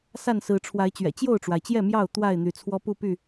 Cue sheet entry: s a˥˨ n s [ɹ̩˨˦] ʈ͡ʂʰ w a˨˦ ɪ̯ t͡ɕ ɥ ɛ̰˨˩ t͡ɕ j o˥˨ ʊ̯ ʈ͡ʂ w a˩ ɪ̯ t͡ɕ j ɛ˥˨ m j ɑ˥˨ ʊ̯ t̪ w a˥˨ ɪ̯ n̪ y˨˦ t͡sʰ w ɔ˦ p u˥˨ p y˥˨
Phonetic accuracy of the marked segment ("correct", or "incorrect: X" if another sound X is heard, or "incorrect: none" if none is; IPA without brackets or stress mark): correct